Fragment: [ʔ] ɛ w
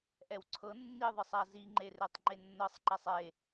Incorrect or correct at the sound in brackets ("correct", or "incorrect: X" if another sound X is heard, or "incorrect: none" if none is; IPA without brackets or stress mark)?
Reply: correct